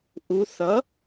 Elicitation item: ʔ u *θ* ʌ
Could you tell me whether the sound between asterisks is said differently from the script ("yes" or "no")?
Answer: no